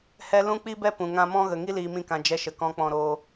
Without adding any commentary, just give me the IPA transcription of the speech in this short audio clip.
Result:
h ɛ˧ l ũ˦ k͡p i˦ b ɛ˦ p ũ˨ ŋ ã˦ m ɔ̃˦ ɣ ə˨ ŋ i˦ l iː˨ m ĩ˧ k ã˨ d͡ʒ ɛ˧ ʃ ə˨ k ɔ̃˧ k͡p ɔ̃˧ ɾ oː˧

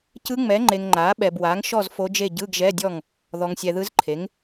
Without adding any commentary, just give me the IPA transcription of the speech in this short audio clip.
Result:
c ɯ˧˥ ŋ͡m ɛ˩˥ ŋ͡ǃ e˨ ŋ ŋ͡ǃ a˩˥ ɓ ɛ˨ b w a˩˥ ŋ ʃ ɔ˥˨ z f o˧˥ d͡ʒ e˥˨ ɟ ɯ˧˥˧ ɡ ʒ ɛ˧˥˧ dʲ ɔ˥˨ ŋ | ð ɔ˨ ŋ sʲ ɛ˨ ð ɯ˧˥ z ǃʰ e˩˥ ŋ

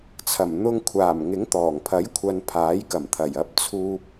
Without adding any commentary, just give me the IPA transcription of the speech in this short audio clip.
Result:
t͡sʰ ɐ˨˩ m n̪ ʊ˧ ŋ kʷʰ aː˨˩ m ŋ ɪ˨˥ ŋ t̪ ɔː˨˩ ŋ pʰ ɐ˨˥ j kʷʰ ɐ˨ n pʰ aː˨˥ j k ɐ˨˩ m t̪ʰ ɐ˨˩ j ɐ˨˥ p̚ t͡sʰ uː˨ p̚

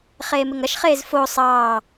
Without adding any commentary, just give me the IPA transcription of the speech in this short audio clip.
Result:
χ eː m ɪ ŋ ɐ ʃ χ eː z f o sˤ ɑː

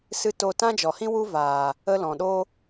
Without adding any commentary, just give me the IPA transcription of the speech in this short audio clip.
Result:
s ɨ˦ t o˧ t ã˦ d͡ʒ ɔ˨ h ĩ˦ w u˦ v aː˨ | ə˦ l ɔ̃˨ ɗ o˦

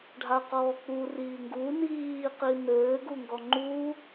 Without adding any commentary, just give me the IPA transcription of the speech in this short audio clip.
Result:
ɖʱ a q ɔː k͡p u r iː ŋ ɡ u n iː q i n ɘː ɡ u ŋ ɡ ɔ ŋ͡ǃ u

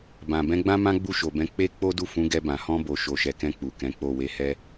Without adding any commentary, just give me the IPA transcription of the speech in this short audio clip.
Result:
b ã˨ b ɛ̃˨˦ ɡ͡b ã˦ m ã˦ ɡ͡b u˦˨ ʃ o˨ b ɛ̃˨˦ k͡p e˦ k͡p o˦ d u˦˨ f ũ˨˦ ɡ ɛ˧ b ã˨ h ɔ̃˧ b o˨ ʃ o˨ ʃ ɛ˨ k ɛ̃˧ k͡p u˨ k ɛ̃˨˦ k͡p o˦˨ w e˧ h ɛ˦

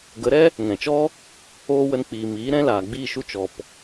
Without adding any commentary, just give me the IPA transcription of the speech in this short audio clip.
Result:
ɡ ə˨˦ ɾ ɛ˦ | ŋ ɛ̃˨ t͡ʃ ɔ˦ | oː˦ w ə˧ n k͡p iː˨ m iː˨˦ ɾ ɛ̃˧ l aː˨ ɡ͡b iː˦˨ ʃ u˦˨ t͡ʃ ɔ˨ p

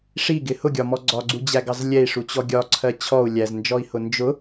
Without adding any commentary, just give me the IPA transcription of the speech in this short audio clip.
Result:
ʂ i ɡ ɪ h ʊ ɡʲ ɒ m ɔ ɡ͡ǀ ɒ ɡ͡ǀ u d͡ʑ æ ɡ ɑ z lʲ ɛ i̯ ʂ u t͡ɕ ɔ ɡʲ ɒ ǀʰ ɜ t͡ɕʰ ɔ u̯ lʲ æ z n d͡ʒ ɔ i̯ h ʊ n d͡ʒ ʊ

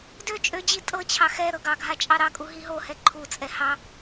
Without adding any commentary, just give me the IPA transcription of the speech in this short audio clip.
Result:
d ø t͡ʃʼ ø d͡ʑ i tʼ ɤ t͡ɕʰ ɑ x ɛ ɾ ɤ ɡ ɑ ɡʱ a t͡ʃʼ ɑ ɾ ɑ kʼ u ɦ i ɦ o h ɛ ǃʰ u t͡sʼ ɛ h ɑ

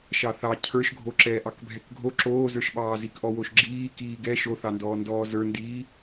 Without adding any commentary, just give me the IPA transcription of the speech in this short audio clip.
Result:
ʃ ɑ θ ɑ cʰ ə˞ ʃ ɡʱ o ǁ ɛː ʔ ɑ k bʱ ɛ k ɡʱ o ǁ oː z ə˞ ʃ ɓ ɑː z i k ʔ ɔ w o ʃ ɡ͡ǁ iː k iː ɡ ɛ ʃ o θ ɑ n d ɔː n d ɔː z ə˞ n d iː

